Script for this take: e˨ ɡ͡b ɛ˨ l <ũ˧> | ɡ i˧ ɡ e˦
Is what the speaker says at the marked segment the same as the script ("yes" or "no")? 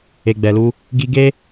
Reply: no